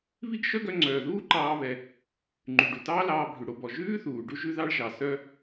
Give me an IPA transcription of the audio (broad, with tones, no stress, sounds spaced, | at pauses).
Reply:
β i˥ ɡ ʃ œ˥ ɡ œ˧ ŋ͡ǀ œː˩ ð uː˥ ǃ ɑː˧ β ɛ˩ | ŋ͡ǃ y˩ ɖ u˩ t ɑː˥ l ɑː˧ bʱ ʉ˩ ɽ o˧ b ɔ˩ ʒ ʉː˥ θ uː˩ ɖ u˧ ʒ ʉ˧ ð ɑ˧ ɭ ʒ ɑ˩ s œ˥